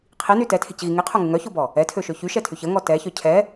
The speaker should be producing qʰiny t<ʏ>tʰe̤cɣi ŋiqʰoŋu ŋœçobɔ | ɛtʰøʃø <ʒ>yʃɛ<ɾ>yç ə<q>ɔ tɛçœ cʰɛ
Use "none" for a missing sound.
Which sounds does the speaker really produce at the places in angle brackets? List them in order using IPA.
ɛ, ç, tʰ, ŋ

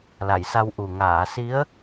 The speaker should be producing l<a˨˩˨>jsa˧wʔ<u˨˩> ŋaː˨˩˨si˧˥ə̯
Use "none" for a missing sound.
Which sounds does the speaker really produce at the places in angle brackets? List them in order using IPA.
a˨˩˨, u˨˩

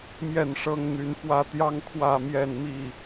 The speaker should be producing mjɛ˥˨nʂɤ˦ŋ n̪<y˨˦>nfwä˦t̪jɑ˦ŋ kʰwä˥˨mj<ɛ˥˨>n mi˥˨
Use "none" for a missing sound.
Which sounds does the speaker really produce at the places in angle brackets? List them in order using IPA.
y˨˦, ɛ˥˨

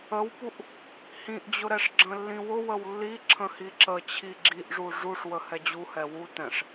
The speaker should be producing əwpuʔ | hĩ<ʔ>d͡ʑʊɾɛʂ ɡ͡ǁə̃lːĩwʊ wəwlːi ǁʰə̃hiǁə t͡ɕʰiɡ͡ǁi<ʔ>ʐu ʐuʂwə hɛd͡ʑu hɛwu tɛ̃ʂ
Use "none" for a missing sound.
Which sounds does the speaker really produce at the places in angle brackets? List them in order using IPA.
ʔ, ʔ

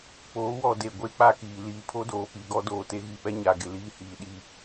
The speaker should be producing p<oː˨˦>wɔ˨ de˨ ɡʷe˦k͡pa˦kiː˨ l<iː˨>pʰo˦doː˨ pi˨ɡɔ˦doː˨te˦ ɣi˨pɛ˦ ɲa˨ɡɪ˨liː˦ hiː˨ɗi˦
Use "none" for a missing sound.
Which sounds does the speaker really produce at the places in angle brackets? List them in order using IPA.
oː˨˦, iː˨

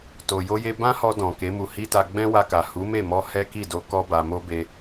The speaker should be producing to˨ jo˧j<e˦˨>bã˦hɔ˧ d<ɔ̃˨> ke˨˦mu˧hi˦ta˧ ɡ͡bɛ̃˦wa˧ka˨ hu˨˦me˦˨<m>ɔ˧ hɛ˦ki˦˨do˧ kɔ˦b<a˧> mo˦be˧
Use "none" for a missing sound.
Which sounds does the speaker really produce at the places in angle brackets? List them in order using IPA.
e˧, ɔ̃˨, m, a˧

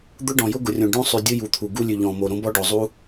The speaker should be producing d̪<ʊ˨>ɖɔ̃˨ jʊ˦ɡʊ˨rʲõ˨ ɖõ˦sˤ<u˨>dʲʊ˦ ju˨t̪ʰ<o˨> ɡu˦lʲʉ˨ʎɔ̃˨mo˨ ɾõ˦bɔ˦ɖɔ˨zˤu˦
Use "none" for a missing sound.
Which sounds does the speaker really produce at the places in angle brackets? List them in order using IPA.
ʊ˦, ʉ˨, u˨

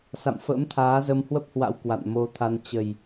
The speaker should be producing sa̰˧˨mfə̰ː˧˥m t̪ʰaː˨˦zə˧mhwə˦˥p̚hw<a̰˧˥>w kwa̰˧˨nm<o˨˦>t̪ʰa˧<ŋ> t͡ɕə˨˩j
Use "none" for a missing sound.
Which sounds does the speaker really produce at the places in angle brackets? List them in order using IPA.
a̰˧˥, o˨˦, n

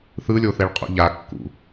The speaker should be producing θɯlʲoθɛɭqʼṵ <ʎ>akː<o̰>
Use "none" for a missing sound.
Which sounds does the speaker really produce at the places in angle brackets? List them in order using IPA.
ʎ, ṵ

